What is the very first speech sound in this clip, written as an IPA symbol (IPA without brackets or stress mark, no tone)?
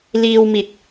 l